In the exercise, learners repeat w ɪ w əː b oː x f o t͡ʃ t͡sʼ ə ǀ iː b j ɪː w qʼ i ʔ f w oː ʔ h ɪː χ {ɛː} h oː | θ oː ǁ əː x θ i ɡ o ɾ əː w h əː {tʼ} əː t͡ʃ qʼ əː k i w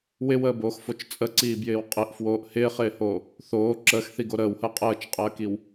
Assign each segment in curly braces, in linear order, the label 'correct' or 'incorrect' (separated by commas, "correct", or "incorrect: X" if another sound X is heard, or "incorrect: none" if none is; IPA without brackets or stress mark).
incorrect: ɪː, incorrect: qʼ